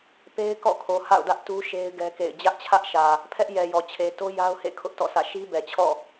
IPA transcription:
p e˦ ɪ̯ k ɔ̰˦˨ kʰ o˨ h a̰˦˨ ʊ̯ d ä˦ ʔ t u˦ ʃ e˦ ɪ̯ ɡ ɛ˦ k ḛ˦˨ ɪ̯ d͡ʑ ä˦ ʔ t͡ɕʰ ä˦ ʔ ʃ ä˨ | pʰ ɛ˦ ʔ j ɛ˨ j ɔ˨ t͡ɕʰ e˨ t o˦ j a˦ ʊ̯ h ḛ˦˨ kʰ ʊ˦ ʔ t ɔ̰˦˨ s ä̰˦˨ ʃ i˦ b ɛ˨ t͡ɕʰ ɔ̰˦˨

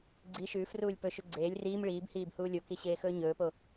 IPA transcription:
ɡ͡ǀ i ʃ ʉː f r uː lʲ p ɵ ʃ ʉ ɡ͡ǀ eː lʲ r iː m ɭ iː b h iː b h uː lʲ o k i ɕ eː x ɵː ɲ ɵː p o

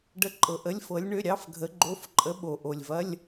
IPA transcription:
ɖ ə˧˥˧ ǃʼ ɤ˨ ʔ ə˧˥˧ lʲ f ɤ˧˥ lʲ ɳ ø˧˥˧ ɾʲ ɑ˧˥˧ f ɡʱ ə˧˥ ɡ͡ǃ o˧˥˧ f ǃʼ ə˧˥ ɓ o˨ ʔ o˨ lʲ v ɐ˧˥˧ lʲ

